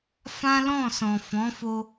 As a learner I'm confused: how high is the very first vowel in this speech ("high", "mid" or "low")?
low